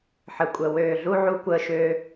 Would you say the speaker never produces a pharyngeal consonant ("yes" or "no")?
no